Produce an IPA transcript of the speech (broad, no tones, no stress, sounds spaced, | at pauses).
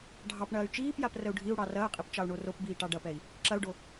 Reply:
ɖʱ ɑ p ɳ ɐː y̯ t͡ʃ iː p j a p r ə u̯ ɖʱ i u̯ ɽ ɑ r ɐː qʼ i p t͡ʃ ɑ u̯ ɳ o r o p b iː ʈ ɑ ɖ ɐ p ɛ i̯ | ǁ ɐ u̯ ɖ o